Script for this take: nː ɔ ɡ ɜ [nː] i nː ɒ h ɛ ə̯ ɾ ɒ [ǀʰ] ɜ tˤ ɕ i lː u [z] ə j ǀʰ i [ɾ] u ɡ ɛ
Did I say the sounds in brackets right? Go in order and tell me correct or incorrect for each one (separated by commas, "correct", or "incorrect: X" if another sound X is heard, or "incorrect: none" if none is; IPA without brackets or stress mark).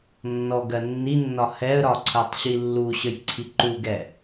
correct, correct, incorrect: ɕ, incorrect: ǃ